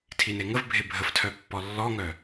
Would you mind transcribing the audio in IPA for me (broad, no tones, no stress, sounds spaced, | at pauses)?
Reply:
tʰ i n e ŋ ə v bʱ e bʱ ə f tʰ œ pː ɔ lː ɔ ŋ œ